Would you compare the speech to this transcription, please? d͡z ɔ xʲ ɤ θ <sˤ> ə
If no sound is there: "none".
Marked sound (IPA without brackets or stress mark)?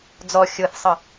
sˤ